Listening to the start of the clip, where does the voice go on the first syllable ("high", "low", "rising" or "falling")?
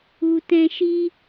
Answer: low